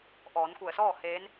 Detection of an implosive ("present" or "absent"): absent